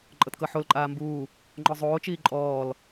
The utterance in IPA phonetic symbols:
ǃʼ ɤ t k ɤ ħ o l ǃʼ aː m b uː | ŋ͡ǃ ɔ zˤ oː t͡ʃ iː ǃʼ ɔː l

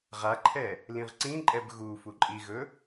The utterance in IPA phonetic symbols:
ʁ a ǃʰ ɛ | l ĩ ʁ ǀ ĩ ǃʼ ɛ b ɣ u f u ǃʼ i ɣ ɵ

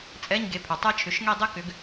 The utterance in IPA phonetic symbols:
t͡sʼ ɛ˧˥˧ ɲ ɡ e˨˦ pʰ ʏ˩ tˤ ɛ˥ t͡ʃʰ ʏ˩˧˩ ʃ ŋ e˥˧ dˤ e˥ k ʏ˨˦ ɡ

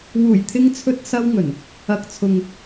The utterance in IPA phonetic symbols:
w uː˨˩ j t̪ʰ ɪ˧ ŋ t͡sʰ ɵ˧ t̚ s ɐ˧ w ŋ ɵ˨˩ n | ɐ˨˥ k̚ t͡sʰ ʊ˨ ŋ

